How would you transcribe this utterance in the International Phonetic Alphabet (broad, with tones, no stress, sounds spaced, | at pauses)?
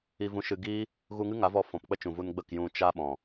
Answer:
i˧ v ũ˧ ʃ ɨ˧ ɡ iː˦ | ɣ u˧ ŋ ɨ˦ ŋ a˨˦ v ɔ˧ f ɔ̃˨ p k͡p ə˦ t͡ʃ ũ˨ v u˧ n ɡ͡b ə˦˨ k j ũ˧ t͡ʃ a˦ ɓ ɔ̃˨